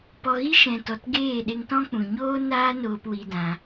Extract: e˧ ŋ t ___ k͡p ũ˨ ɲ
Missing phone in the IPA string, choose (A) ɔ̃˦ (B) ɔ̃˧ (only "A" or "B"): A